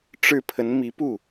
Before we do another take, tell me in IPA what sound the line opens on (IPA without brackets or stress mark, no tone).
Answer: ʈ͡ʂ